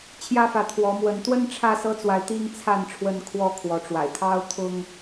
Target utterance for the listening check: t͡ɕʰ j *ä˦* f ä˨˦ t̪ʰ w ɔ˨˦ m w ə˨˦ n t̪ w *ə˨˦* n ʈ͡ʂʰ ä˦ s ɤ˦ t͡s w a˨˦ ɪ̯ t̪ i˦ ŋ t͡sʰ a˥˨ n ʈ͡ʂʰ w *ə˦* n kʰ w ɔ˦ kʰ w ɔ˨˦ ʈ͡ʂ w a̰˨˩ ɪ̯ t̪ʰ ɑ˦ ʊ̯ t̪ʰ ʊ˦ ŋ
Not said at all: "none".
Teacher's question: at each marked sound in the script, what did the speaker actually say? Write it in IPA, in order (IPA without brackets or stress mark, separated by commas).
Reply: ä˦, ə˦, ə˦